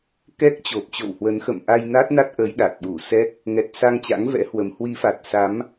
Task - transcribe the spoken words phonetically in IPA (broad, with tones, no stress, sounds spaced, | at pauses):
k ɛ˦˥ k̚ t͡ɕ o˨˩ p̚ t͡ɕ o̰˧˨ w h w ə˨˦ n x ə̰˧˨ m ʔ a˧ j n a˦˥ t̚ n a˦˥ t̚ ʔ əː˨˦ j ɗ a˨˩ t̚ ɗ u˧˩ s ɛ˦˥ k̚ | ŋ ɛ˨˩ t̚ s a˧ ŋ t͡ɕ a̰˧˥ ŋ v ɛ̰˧˥ h w ə˨˦ m h w i˨˦ f a˨˩ t̚ s a˨˦ m